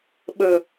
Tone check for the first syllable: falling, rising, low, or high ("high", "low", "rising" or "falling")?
low